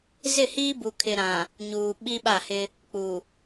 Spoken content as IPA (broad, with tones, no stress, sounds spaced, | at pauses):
z ɪ˦˨ h iː˦ b u˨ kʰ ɪ˨ ɾ ã˨ | ɲ uː˨ ɓ i˦ ɓ a˦˨ h ɪ˦ | k͡p u˨